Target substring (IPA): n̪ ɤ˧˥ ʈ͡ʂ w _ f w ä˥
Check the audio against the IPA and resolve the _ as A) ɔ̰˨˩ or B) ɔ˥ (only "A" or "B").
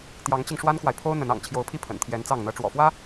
A